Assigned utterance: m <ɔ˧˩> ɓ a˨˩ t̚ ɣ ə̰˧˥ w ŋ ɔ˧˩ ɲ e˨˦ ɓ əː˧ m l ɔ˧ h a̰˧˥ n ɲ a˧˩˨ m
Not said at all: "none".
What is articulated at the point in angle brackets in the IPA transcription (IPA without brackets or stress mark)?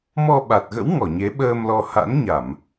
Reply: ɔ˧